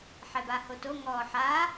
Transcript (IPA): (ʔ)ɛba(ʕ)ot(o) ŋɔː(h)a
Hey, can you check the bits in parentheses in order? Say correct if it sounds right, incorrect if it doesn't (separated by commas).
incorrect, incorrect, correct, incorrect